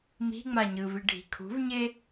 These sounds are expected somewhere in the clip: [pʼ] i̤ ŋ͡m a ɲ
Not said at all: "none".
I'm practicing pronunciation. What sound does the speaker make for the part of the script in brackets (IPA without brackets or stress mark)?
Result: m